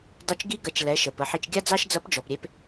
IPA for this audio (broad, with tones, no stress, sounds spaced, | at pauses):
dˤ ʉ˧ t͡ʃ ɡ i˧˥ ɡ ɐ˩˧ t͡ʃ l ɛ˩˧ ʃ ə˩ p ə˩˧ ħ i˧ t͡ʃ ɡʲ a˥ d͡z ɑ˥ ʃ d͡z ɐ˧˥ p d͡ʒ ɔ˩ p ɾʲ e˧ p